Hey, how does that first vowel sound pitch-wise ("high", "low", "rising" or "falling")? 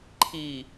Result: low